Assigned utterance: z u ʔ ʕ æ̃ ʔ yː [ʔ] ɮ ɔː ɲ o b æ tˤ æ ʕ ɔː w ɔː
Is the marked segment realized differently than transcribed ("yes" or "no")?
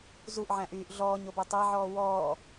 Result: no